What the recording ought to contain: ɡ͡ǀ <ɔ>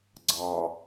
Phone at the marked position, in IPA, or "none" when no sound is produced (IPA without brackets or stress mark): ɑ